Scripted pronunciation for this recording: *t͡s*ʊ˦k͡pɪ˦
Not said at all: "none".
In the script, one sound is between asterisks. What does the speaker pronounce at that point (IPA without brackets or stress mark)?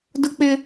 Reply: d